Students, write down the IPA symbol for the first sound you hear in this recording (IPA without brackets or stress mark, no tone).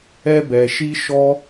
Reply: ɛ